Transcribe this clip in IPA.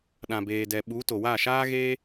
ɗã˨beː˨ dɛ˨ ɓu˨˦to˨wa˦˨ʃaː˦ ɣe˦

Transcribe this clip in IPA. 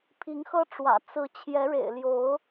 pʰi˨˦ŋxɤ˦ʈ͡ʂwä̰˨˩ t͡sɹ̩˨˦ t͡ɕʰjɛ˨˦ɻḛ˨˩ɪ̯ljo˨˦ʊ̯

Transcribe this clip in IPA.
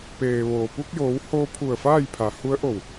peː˩ʋoː˩pu˧k̚joː˩˧w hoː˧pʰu˧˩ə̯ faː˥˨jpʰa˩˧hu˧˥ə̯ʔo˧˩w

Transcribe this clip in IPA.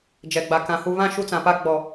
d͡ʒɛ˨ɡ͡ba˨kã˨ hu˨βã˦˨ ʃu˦t͡sã˨pa˦ ɡ͡bɔ˨

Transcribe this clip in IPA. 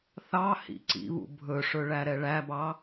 θɑhḭ ǀḭβṵ bʱɵʂɵɭæ ɾɛɭæbɑ

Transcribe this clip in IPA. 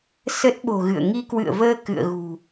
sə˦˥t̚ɓo̤˨˩ ɣɨ̰˧˨ə̯ ŋi˧kwɨ̰˧˨ə̯vəː˧ kɨ̰˧˨ə̯ɣṳ˨˩

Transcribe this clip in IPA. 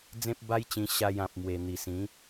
d͡zẽ˦p̚ba˦jt͡ɕĩ˧ ɕa˧jã˨p̚mwe˨˩ n̪i˨˩sĩ˨˦

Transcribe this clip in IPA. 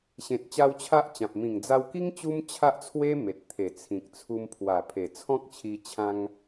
ɕẽ˨t̚t͡ɕa˧w t͡ɕʰa˦ʔt͡ɕã˨p̚ mĩ˨˩ŋd͡za˧wki˦ŋ t͡ɕu˦mt͡ɕʰa˦ʔt͡sʰwe˦me˨t̚ t̪ʰe˨˩ t͡sʰĩ˨k̚t͡sʰu˧m pʰwa˨˩pʰe˨˩ t͡sʰɔ̃˦k̚t͡ɕʰi˧ t͡ɕʰã˧ŋ

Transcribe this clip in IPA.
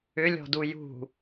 ʏlʲɔ̤du jṳ

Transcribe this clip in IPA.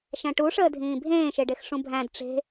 ʃæ̃ʈuʂəːdʱĩː bʱẽːʃeɖex ʂũbʱæ̃d ʈ͡ʂe̤

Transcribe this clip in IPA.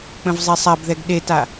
k͡pə̃vzˤesˤabðɛɡ ɗeta

